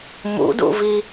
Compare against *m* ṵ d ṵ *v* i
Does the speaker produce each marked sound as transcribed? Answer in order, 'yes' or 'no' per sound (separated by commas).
yes, yes